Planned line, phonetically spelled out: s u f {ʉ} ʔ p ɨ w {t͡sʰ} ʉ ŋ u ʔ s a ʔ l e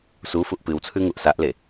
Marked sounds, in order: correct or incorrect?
incorrect: u, correct

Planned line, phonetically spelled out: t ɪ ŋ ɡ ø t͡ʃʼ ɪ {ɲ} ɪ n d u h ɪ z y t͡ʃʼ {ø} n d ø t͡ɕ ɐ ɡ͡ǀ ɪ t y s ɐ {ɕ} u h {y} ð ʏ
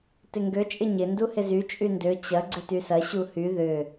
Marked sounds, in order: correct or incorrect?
correct, incorrect: y, correct, correct

